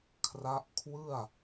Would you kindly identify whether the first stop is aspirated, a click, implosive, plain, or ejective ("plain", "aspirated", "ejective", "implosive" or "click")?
aspirated